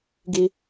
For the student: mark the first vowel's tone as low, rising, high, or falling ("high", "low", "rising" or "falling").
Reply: high